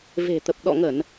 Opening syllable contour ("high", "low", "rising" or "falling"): low